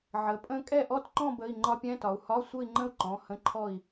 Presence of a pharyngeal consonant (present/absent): present